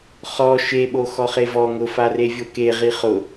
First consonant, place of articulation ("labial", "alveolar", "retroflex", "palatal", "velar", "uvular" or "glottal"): uvular